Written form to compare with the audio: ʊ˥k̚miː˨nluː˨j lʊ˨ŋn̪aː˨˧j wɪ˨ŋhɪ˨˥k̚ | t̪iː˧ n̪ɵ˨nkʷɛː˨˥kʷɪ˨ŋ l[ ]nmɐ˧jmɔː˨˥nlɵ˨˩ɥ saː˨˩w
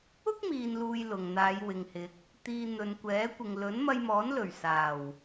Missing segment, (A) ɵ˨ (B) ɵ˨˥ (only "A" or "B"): B